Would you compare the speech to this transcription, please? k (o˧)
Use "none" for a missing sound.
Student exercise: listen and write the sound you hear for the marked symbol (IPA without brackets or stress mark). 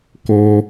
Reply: o˧